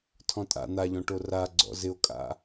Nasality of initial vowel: nasal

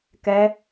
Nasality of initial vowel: oral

